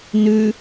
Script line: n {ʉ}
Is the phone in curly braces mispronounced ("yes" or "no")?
no